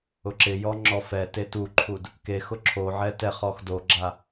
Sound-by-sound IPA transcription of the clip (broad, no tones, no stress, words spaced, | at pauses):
ʊǁɪjɔ ŋ͡ǁɔfɛte tuǃʰud | kexʊ ǁʰoʕɛ tɛχɔx doɡ͡ǁa